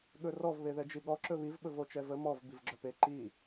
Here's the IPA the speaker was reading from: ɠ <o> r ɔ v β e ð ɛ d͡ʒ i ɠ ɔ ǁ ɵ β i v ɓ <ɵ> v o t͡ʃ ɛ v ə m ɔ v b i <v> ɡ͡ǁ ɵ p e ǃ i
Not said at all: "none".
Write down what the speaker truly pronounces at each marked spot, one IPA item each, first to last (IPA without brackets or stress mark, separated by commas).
ɵ, ɵ, v